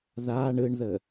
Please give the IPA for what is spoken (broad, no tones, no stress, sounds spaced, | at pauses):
ð a ɳ ɯ ɳ ð ə